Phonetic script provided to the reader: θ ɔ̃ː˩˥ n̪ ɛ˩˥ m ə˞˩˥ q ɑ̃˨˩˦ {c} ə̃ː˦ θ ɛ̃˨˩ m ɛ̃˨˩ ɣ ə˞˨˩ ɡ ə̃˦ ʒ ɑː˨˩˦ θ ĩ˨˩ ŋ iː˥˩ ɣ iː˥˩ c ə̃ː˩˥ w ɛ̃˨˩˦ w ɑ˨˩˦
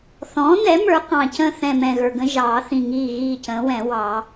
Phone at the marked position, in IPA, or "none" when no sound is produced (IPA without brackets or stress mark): c